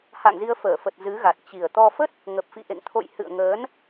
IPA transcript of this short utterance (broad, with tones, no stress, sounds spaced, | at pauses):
h a̰˧˨ ŋ z i˧ ə̯ f əː˧˩ f ə˨˩ t̚ z ɨ˨˦ ɣ a˨˩ t̚ t͡ɕ i˨˩ ə̯ t̪ ɔ˧ f ə˦˥ t̚ | ŋ ə˨˩ p̚ f ḭ˧˨ ʔ ḛ˧˨ ŋ t̪ʰ o̰˧˨ j h ɨ̰˧˨ ə̯ ŋ əː˨˦ n